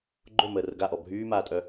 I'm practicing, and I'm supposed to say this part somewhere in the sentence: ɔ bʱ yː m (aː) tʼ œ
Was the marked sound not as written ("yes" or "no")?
no